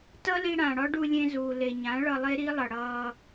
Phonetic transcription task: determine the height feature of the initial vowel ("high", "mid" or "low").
mid